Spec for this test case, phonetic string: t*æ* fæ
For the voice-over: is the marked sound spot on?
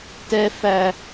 no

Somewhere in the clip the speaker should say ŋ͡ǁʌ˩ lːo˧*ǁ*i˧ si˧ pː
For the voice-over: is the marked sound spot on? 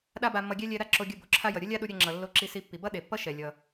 yes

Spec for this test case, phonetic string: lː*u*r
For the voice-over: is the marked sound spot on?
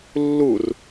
yes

